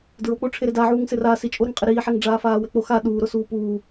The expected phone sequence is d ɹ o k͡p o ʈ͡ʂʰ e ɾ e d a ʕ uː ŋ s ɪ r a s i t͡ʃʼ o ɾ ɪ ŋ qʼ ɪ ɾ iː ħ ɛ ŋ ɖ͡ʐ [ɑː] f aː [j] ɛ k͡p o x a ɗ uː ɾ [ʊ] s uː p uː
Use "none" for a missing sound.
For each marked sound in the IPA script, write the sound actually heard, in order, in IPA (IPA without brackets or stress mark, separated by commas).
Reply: aː, w, ʊ